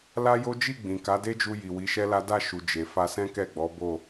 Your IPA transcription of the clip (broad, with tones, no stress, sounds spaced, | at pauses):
l a˦ j o˦ d͡ʒ i˦˨ ɡ͡b ĩ˨ k a˨˦ d e˦ d͡ʒ u˧ j i˨ w i˨˦ ʃ ɛ˦ l a˦ d a˦˨ ʃ u˨ d͡ʒ e˨ f a˧ s ɛ̃˦ k ɛ˦˨ ɡ͡b ɔ˨˦ b o˦˨